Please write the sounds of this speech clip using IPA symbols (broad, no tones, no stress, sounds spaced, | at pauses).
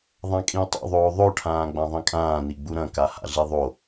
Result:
ðˤ ã kʼ ĩ ʊ̯ tˤ ṵ ðˤ oː ðˤ o ʈʰ ãː ɡ͡b ã ðˤ ĩ kʼ ãː n i ɡ͡b u ɾ ɐ̃ k a h a̰ ɮ i ðˤ o